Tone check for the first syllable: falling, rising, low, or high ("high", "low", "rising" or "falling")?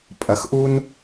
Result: low